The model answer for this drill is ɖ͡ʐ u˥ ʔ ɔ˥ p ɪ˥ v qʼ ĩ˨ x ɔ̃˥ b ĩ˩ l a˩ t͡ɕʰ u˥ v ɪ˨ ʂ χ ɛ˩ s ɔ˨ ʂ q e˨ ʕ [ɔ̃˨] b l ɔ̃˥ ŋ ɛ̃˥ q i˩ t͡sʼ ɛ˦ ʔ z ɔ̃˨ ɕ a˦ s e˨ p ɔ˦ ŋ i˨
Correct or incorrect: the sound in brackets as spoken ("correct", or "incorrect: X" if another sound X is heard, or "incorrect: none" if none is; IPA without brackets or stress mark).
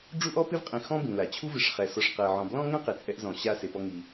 correct